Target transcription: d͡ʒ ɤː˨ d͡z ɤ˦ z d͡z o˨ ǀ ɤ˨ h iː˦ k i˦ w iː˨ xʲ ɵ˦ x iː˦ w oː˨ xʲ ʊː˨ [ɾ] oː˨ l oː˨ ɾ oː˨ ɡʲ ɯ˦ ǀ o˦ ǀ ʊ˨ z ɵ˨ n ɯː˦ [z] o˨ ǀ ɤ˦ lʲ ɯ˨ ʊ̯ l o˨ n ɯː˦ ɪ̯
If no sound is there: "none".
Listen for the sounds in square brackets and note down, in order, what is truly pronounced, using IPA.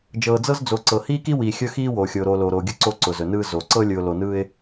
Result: ɾ, z

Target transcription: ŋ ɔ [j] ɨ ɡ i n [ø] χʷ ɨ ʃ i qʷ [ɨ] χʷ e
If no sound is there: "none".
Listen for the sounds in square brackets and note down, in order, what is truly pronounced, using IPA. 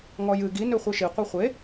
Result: j, ø, i

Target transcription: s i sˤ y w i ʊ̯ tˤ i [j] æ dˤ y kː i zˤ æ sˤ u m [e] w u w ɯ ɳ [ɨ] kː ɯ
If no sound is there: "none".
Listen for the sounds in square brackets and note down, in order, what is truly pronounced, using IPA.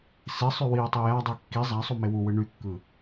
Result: j, e, y

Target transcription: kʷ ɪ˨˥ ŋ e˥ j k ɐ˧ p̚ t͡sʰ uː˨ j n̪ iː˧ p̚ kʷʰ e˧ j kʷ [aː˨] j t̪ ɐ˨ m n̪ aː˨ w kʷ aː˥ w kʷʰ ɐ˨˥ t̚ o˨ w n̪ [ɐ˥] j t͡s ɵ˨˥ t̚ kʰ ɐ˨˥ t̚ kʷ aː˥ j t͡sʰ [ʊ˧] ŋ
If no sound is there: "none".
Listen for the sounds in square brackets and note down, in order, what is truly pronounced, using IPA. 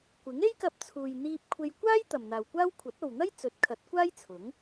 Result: aː˥, ɐ˥, ʊ˨˥

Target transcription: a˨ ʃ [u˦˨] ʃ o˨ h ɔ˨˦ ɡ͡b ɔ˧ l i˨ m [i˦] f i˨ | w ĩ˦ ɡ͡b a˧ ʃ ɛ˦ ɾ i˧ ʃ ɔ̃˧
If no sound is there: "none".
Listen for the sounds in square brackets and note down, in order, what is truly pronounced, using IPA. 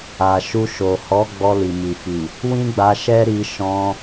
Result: u˧, i˨

